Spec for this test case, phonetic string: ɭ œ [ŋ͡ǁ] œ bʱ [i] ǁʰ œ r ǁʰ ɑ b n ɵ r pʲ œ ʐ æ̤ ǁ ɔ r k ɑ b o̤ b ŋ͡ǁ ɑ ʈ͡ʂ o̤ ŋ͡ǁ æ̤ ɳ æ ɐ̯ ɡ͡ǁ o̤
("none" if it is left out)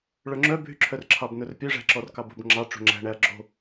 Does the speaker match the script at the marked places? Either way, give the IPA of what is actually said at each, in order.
ŋ͡ǁ, y

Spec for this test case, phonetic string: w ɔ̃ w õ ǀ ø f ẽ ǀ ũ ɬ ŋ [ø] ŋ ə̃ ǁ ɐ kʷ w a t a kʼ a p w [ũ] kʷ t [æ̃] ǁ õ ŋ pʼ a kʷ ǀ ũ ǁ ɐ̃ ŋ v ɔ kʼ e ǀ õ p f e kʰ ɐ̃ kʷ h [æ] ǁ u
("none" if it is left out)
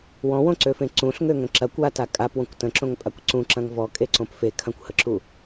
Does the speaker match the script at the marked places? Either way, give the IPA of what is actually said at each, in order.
ø, õ, ə̃, ə

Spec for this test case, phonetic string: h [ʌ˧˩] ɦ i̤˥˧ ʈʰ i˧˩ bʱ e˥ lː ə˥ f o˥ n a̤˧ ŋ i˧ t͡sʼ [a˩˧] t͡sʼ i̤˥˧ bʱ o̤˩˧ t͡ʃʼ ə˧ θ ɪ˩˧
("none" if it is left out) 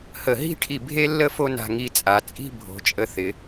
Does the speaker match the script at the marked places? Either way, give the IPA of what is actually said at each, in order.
ə˧˩, a˩˧

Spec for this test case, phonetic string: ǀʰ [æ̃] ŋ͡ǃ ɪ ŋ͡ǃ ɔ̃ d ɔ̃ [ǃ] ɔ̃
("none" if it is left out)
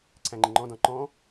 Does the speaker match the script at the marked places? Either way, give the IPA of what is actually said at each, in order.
æ̃, ǃ

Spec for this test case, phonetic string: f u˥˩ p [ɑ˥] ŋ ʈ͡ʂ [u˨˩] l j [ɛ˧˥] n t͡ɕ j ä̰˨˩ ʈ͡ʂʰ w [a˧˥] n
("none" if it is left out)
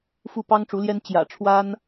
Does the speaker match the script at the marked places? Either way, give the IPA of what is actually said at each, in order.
ɑ˥, u˧˥, ɛ˥, a˥

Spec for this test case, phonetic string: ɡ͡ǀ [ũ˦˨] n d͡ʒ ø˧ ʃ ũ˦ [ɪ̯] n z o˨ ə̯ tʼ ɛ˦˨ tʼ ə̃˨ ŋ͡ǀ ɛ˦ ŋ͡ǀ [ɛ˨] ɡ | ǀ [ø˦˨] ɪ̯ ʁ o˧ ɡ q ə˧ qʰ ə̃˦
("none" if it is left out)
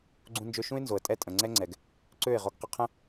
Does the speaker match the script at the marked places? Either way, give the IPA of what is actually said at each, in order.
ũ˧, ɪ̯, ɛ˨, ø˦˨

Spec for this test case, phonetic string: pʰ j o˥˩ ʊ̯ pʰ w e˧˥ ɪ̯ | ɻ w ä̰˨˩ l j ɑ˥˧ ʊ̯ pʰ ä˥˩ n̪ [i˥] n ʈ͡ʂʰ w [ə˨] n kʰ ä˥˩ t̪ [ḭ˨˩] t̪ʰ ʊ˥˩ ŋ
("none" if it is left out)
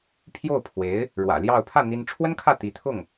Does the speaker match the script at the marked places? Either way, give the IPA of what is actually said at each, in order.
i˥, ə˥, i˧˥

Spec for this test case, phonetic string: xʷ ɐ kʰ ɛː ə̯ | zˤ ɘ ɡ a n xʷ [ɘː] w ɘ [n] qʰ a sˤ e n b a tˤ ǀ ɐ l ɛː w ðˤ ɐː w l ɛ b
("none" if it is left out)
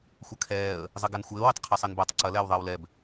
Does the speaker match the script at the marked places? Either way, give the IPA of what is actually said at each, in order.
ɘː, tˤ

